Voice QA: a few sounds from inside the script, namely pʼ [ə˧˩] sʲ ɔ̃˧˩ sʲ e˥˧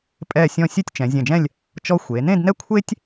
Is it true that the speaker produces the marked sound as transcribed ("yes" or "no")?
no